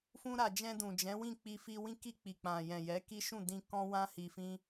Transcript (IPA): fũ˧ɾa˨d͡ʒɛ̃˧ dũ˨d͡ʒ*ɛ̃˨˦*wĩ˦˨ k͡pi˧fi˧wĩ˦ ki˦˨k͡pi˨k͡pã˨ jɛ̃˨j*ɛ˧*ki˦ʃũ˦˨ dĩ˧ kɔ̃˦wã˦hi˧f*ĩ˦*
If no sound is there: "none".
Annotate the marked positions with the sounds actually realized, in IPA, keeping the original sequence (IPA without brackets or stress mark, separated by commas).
ɛ̃˨˦, ɛ˨˦, ĩ˦